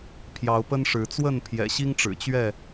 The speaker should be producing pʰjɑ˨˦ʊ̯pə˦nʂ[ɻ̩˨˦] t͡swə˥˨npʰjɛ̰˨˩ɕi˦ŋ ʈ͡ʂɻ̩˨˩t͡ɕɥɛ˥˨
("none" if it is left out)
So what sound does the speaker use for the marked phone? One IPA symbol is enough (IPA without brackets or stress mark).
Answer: ɻ̩˨˦